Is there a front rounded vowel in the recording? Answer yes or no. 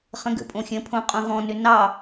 yes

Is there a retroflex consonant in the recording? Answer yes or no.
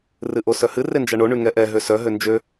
yes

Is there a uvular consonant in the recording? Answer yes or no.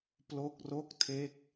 no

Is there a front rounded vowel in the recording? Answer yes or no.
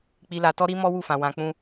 no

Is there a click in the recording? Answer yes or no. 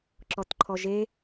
yes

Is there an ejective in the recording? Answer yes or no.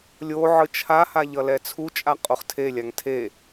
yes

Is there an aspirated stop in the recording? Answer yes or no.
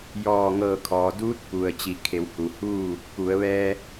yes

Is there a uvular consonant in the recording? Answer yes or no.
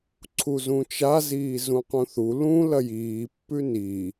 yes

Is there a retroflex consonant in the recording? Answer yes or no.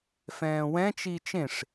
yes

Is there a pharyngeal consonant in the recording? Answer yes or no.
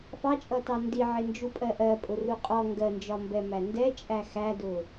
yes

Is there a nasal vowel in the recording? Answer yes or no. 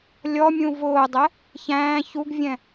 yes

